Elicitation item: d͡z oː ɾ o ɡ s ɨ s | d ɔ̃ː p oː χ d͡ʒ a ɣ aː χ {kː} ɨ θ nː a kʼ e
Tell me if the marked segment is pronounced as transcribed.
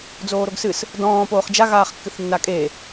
yes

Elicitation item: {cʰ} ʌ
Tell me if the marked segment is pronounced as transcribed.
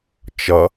no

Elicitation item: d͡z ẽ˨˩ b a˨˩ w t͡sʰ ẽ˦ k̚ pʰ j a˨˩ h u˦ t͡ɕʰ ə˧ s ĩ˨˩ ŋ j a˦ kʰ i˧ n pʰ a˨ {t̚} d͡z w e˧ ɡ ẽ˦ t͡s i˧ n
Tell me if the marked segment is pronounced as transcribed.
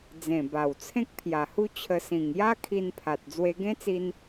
yes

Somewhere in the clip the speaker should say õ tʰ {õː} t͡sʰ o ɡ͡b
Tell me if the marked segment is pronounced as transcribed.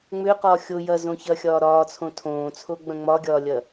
yes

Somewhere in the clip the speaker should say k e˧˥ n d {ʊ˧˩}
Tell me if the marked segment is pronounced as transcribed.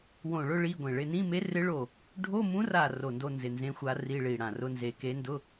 no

